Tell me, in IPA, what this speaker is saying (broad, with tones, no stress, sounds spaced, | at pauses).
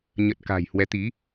ɲ ə˨˩ t̚ k a̤˨˩ j h w ɛ˨˦ t̪ i˨˦